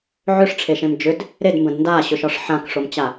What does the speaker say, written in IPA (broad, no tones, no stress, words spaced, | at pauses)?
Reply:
ʕʏʂʈ͡ʂʰeʃẽm d͡ʒʏd | ɾedmbə̃d ndaɕʏʃɒʂ ħãkʂomt͡ɕa